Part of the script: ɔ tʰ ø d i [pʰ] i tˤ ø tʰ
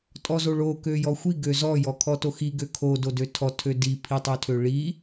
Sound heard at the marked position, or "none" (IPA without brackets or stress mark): pʰ